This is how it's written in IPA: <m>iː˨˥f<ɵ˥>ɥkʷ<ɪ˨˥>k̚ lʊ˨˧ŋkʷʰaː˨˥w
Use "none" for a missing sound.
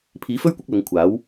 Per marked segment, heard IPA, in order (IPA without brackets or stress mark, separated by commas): pʰ, ɵ˥, ɪ˨˥